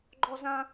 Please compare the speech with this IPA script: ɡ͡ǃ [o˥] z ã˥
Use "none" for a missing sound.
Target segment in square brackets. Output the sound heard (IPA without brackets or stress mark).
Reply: ɔ˥